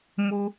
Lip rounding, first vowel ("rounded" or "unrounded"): rounded